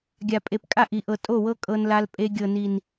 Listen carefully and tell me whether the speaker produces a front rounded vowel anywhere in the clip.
no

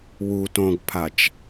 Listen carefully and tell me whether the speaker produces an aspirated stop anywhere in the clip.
yes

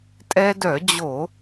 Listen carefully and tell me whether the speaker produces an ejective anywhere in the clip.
yes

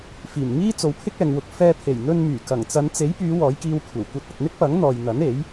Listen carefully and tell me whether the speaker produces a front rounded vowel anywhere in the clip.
yes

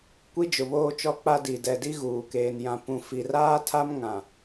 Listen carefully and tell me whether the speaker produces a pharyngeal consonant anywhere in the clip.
no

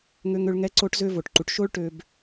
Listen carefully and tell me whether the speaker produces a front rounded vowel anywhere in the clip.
yes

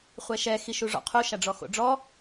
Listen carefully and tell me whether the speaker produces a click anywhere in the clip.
no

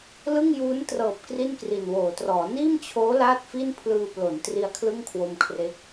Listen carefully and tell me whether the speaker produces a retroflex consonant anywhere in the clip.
no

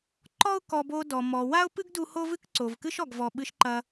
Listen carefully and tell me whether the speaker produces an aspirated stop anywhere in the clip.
no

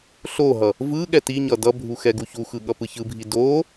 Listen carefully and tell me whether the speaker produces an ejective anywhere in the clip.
no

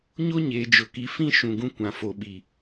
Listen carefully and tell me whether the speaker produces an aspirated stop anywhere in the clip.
no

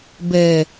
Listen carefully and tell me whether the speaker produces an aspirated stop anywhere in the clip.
no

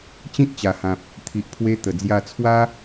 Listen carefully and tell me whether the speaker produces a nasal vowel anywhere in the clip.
yes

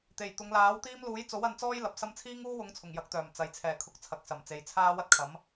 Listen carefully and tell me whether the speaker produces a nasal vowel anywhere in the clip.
no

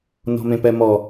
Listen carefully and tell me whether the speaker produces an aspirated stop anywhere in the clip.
no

